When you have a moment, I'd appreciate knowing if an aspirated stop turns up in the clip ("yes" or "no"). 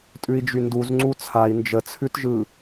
yes